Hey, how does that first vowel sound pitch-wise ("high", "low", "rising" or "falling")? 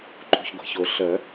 low